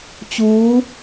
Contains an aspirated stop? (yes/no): no